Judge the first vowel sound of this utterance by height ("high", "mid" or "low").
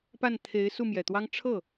low